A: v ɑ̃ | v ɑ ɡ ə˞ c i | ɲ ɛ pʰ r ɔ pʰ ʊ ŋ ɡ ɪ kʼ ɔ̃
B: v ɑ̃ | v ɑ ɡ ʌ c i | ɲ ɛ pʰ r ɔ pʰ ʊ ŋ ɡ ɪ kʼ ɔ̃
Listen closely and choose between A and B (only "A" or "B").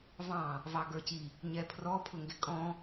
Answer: A